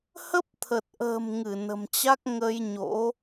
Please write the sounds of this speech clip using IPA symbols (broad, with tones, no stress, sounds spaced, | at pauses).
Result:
h ə˦˥ p̚ t̪ʰ ə˨˩ t̚ ʔ ə̤ː˨˩ m ŋ ɨ˧˩ n ə̤˨˩ m t͡ɕ a˦˥ k̚ ŋ ə˧ j ɲ o̰˧˥